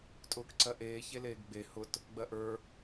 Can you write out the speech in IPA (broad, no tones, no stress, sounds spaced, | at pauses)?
tʼ ʊː k ǀ ɜ ʔ eː ç e l eː ɡ ɡ͡b e h ʊ t | ɡ͡b ɜ ʔ ə˞